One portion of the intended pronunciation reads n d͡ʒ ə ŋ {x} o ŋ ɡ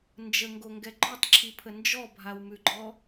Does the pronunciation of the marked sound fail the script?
yes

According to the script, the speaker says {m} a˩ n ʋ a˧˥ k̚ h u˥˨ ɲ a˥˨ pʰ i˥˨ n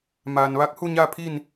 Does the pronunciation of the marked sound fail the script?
no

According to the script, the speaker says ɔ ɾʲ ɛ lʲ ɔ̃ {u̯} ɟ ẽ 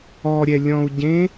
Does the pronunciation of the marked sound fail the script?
no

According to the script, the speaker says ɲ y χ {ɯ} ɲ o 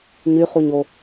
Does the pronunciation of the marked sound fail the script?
yes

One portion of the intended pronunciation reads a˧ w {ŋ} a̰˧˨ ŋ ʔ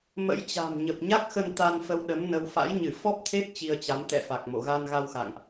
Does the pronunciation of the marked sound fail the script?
yes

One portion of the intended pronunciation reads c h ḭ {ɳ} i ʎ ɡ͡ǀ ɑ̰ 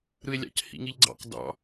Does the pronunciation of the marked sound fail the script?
yes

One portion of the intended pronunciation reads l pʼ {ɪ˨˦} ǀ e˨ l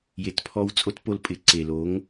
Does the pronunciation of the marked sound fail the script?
no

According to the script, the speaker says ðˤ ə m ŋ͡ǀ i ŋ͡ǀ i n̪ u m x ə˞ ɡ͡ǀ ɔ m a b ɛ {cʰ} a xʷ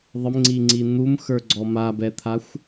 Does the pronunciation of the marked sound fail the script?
yes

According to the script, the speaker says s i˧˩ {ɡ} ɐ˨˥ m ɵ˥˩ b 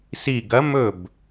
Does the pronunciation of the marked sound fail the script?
no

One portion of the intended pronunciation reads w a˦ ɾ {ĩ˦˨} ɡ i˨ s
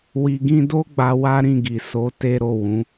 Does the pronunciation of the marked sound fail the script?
no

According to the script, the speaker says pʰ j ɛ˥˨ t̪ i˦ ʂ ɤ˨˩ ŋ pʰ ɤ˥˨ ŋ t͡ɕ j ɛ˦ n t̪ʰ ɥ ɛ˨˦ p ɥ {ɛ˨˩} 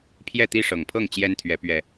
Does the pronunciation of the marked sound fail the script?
no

